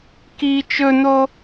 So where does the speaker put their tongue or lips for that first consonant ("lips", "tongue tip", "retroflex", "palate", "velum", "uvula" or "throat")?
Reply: velum